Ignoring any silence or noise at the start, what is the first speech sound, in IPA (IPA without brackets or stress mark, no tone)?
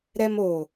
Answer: ɾ